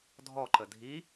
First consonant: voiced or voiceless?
voiced